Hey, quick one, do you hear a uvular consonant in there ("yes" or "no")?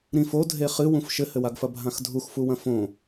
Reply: yes